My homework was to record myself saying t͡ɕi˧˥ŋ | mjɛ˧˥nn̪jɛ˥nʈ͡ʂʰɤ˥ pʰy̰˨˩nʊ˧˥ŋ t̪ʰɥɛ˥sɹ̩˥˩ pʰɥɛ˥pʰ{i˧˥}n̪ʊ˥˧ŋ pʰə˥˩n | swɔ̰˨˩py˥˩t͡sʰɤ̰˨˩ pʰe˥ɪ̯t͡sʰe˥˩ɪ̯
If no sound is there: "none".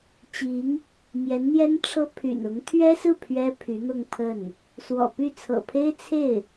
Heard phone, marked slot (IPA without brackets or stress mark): y˧˥